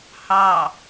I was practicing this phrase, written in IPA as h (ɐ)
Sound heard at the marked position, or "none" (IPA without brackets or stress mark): ɑ